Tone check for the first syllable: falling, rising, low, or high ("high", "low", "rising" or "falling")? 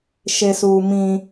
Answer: low